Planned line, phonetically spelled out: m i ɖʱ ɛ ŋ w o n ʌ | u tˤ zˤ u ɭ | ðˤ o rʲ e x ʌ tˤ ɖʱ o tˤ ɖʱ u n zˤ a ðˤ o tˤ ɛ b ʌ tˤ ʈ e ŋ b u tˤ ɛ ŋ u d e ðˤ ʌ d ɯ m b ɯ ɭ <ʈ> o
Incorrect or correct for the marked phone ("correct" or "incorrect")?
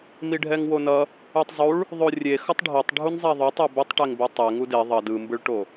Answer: correct